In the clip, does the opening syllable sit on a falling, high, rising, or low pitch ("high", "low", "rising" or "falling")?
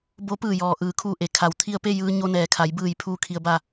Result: rising